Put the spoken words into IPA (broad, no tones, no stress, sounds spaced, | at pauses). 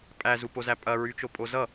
pʼ æ z u p o z æ pʼ ɐ ɹ y t͡ʃ o pʼ o z ʌ